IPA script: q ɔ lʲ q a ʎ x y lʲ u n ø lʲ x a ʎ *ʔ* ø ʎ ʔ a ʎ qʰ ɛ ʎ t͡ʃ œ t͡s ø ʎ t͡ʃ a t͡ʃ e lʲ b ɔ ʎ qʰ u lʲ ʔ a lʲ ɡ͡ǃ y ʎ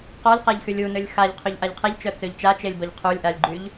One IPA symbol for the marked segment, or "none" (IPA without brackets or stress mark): qʰ